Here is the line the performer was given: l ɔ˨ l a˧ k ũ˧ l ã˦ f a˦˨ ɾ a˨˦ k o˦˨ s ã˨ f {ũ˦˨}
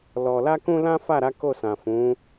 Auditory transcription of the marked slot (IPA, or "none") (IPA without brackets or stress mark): ũ˨˦